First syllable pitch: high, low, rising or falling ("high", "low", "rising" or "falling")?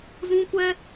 high